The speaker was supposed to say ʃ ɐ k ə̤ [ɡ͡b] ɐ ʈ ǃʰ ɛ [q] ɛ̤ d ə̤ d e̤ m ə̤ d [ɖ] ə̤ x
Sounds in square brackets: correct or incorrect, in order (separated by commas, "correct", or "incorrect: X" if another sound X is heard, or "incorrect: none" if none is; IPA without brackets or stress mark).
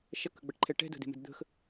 correct, incorrect: ʈ, incorrect: d̪